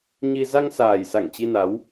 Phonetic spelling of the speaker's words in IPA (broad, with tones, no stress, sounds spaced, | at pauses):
ɲ i˧ z a˧ ŋ s aː˨˩ j s a˧˩ ŋ t͡ɕ i˧ n a˨˦ w